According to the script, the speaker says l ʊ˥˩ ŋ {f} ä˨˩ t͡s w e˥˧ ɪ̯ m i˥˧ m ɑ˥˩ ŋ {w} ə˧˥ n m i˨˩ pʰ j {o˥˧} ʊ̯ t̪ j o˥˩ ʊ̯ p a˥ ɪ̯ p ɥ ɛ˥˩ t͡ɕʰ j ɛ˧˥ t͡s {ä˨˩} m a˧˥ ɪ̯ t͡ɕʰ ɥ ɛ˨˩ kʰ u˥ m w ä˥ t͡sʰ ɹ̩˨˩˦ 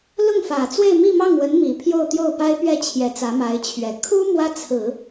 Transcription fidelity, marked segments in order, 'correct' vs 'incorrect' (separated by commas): correct, correct, correct, incorrect